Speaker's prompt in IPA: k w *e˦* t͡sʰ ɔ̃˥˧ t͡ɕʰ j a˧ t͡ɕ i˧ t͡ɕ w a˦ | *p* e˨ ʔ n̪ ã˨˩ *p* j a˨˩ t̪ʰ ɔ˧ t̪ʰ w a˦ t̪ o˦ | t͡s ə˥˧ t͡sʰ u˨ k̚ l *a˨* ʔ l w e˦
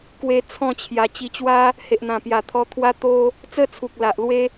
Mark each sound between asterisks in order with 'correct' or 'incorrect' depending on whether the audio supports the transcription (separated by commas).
incorrect, incorrect, correct, correct